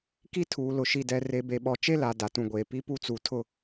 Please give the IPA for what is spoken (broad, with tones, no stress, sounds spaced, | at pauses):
k i˦ tʰ uː˨ l ʊ˨ ʃ i˨ d ɛ˨ r e˨ b e˨ ɓ ɔ˨ t͡ʃ e˦ l a˨ d a˨ t ũ˨ ɡʷ eː˨ p i˦ p u˦ t͡s u˨ tʰ ʊ˦